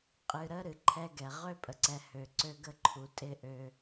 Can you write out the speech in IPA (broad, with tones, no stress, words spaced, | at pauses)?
qʼɨ˨ɾə˦ ɾɨ˨ǃʰɛ˦ɡɛ˨ ʁø˦pʼə˨ǀɛ˨ hø˨ǀø˦ɡə˦ ǃʰu˨tʼɪ˦ ʔø˦